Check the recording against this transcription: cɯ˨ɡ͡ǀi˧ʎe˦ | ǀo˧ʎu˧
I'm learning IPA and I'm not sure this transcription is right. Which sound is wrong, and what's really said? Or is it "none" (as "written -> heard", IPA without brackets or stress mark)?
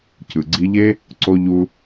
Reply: none